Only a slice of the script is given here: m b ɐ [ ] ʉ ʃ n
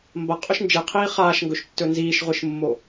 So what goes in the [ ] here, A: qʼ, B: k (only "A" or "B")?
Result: A